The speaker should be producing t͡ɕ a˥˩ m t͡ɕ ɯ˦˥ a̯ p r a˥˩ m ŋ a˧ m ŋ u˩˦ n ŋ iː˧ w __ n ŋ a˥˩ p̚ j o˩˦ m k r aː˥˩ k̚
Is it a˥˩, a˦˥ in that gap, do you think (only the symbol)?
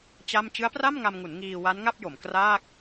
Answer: a˦˥